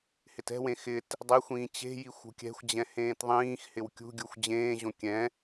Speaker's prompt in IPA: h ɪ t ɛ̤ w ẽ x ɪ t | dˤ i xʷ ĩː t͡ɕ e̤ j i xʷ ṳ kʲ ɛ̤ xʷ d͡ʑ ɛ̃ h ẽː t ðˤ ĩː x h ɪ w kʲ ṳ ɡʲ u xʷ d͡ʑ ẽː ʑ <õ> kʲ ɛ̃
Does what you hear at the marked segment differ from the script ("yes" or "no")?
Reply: no